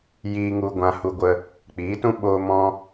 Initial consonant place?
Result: palatal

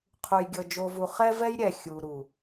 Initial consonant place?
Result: uvular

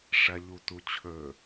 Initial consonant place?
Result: retroflex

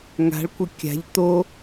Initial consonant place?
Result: velar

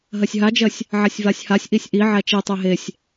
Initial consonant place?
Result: glottal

